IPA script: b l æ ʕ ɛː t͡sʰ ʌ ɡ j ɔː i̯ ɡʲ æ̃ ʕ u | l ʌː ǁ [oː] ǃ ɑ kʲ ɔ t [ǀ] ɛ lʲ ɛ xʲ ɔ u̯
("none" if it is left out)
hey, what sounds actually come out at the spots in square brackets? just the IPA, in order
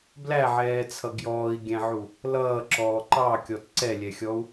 ɔː, ǀ

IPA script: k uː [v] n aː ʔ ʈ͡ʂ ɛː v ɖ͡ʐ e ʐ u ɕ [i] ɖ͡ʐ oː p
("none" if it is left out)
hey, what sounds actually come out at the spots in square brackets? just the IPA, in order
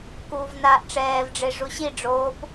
v, i

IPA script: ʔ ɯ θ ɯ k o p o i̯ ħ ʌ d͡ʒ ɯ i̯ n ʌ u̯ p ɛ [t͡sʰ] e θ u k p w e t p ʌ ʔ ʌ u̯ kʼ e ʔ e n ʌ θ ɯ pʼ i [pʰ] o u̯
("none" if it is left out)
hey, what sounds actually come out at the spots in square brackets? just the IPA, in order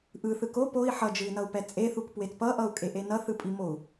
t͡sʼ, m

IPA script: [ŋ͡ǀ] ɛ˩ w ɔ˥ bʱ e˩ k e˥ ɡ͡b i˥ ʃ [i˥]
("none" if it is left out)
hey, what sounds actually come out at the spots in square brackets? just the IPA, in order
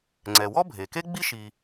ŋ͡ǀ, i˩

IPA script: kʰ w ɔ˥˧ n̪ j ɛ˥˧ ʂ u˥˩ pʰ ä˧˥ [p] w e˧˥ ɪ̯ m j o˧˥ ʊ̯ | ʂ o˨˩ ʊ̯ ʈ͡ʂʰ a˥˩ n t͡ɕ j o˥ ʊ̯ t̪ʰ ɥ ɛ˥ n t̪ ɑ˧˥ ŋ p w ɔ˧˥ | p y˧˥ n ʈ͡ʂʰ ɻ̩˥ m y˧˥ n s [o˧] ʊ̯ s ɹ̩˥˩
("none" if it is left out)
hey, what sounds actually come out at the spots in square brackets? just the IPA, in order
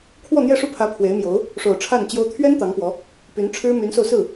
pʰ, o˧

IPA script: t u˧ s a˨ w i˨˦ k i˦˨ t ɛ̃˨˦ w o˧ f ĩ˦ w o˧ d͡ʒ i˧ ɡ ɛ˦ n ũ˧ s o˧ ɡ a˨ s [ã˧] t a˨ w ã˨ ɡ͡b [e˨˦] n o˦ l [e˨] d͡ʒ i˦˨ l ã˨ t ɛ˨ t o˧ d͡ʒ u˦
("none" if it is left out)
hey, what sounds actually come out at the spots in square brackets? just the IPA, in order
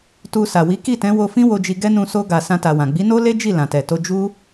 ã˧, i˨˦, e˦

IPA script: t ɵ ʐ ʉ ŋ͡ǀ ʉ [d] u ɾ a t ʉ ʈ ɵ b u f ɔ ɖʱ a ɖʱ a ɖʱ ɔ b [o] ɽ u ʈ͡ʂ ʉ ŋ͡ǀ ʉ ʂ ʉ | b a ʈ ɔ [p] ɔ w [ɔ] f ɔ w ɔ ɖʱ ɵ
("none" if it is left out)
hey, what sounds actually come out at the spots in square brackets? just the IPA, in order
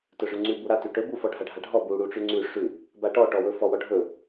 b, u, ʈ, ɵ

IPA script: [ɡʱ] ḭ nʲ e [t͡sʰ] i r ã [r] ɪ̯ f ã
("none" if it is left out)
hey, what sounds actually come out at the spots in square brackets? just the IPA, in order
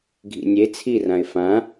ɡʱ, t͡sʰ, none

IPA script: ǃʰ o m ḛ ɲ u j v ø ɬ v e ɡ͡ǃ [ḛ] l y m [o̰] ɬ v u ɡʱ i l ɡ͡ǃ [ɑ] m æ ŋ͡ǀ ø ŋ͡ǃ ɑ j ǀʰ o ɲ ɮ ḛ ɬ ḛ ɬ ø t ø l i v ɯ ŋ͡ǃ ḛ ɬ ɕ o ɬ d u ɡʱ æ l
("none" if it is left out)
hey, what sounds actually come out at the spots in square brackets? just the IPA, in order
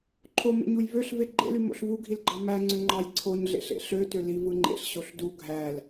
ḛ, o̰, ɑ

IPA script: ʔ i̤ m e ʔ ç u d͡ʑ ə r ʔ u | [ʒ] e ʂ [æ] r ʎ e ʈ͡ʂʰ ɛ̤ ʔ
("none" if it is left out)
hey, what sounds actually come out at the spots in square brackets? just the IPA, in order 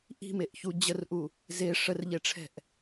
z, ə

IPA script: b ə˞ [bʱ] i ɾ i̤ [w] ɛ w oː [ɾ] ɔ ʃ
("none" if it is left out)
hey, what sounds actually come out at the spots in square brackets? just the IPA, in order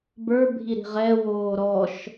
bʱ, ʁ, ɾ

